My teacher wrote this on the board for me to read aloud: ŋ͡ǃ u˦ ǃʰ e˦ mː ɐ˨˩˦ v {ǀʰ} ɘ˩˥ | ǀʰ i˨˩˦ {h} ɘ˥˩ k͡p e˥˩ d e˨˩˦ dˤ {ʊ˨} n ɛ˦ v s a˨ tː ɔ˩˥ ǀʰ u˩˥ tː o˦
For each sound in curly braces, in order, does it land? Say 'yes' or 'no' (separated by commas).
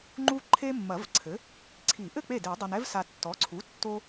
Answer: yes, no, no